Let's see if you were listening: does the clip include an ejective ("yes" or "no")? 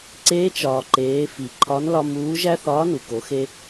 no